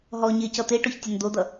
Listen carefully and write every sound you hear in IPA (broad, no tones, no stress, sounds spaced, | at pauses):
ɦ ɔ ɲ e c ʌ t̪ e ʈ o ç tʲ ʌ n d̪ o d̪ ʌ